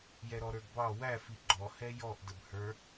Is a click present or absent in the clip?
present